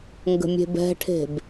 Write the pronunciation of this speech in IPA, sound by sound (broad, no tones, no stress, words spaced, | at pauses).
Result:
ŋɡə̤mʲe̤bɛ̤ʈʰe̤b